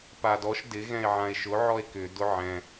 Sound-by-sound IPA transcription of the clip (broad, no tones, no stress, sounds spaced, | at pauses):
p a d ɔ ʃ d ɪ ɣ ɛ̃ e̯ ʕ ã e̯ ʃ ʊ ʕ ɔ e̯ k ʏ d ʊ ʕ ɛ̃